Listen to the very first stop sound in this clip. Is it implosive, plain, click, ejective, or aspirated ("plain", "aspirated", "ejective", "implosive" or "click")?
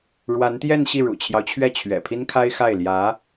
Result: plain